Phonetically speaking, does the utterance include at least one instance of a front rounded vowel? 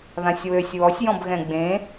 yes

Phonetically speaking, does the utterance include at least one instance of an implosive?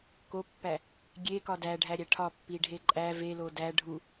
no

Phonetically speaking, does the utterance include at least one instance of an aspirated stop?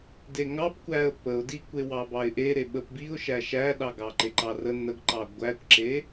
no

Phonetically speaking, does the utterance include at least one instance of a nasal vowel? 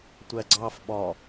no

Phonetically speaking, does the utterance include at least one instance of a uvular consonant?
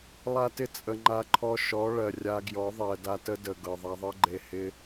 no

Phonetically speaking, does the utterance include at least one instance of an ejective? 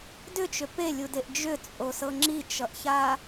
yes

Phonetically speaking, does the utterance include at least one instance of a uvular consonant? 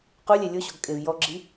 yes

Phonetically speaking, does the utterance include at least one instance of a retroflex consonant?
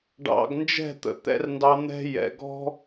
yes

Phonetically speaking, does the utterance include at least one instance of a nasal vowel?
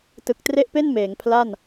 no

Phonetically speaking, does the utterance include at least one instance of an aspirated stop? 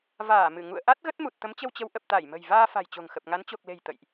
no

